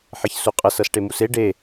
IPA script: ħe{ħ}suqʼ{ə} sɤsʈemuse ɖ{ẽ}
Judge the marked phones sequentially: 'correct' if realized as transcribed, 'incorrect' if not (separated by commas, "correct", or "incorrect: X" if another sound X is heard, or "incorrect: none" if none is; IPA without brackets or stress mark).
incorrect: ç, correct, incorrect: e